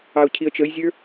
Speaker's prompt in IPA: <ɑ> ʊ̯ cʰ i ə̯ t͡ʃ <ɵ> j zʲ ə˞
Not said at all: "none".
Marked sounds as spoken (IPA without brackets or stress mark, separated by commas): ɑ, ə